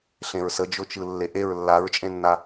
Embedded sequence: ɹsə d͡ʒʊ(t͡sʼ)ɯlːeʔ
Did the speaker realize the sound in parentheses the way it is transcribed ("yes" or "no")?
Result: no